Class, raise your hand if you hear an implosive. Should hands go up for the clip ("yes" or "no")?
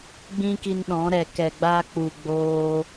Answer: yes